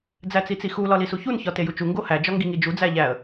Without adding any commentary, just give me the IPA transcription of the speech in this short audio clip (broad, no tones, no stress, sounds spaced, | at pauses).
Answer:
d͡z æ t͡s i t͡s i x u l ɒ l i s u ç u n ç ɒ t e j u t͡ʃ u ŋ ɡ o h æ d͡ʒ ɒ ŋ ɡ i ŋ i d͡ʒ u d͡z æ ʎ æ ə̯